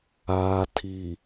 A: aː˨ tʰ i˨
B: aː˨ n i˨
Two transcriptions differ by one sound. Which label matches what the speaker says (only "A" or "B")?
A